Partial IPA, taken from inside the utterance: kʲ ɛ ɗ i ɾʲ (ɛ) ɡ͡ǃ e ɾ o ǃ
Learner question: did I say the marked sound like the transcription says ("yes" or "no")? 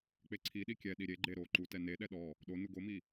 no